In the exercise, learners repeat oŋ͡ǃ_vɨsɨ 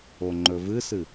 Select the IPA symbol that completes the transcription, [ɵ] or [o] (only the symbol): ɵ